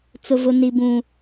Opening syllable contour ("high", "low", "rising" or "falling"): high